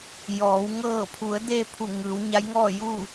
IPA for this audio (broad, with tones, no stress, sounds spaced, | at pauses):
j ɔː˩˧ w ŋ ɤː˧˩ pʰ u˩˧ ə̯ d e˧ pʰ u˧˩ ŋ ɯː˩˧ w ɲ a˧˥ j ŋ ɔː˥˨ j u˥˨